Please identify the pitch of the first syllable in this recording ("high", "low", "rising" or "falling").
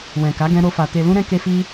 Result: low